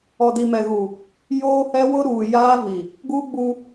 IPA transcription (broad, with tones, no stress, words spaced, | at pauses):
ɔ˨di˨mɛ˨ɣu˨ | joː˦hɛ˦wʊ˦ ɾuː˨ jaː˦vi˨ | ɡu˦ɡ͡bu˦